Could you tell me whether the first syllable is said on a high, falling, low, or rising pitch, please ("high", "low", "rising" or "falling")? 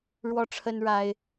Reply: high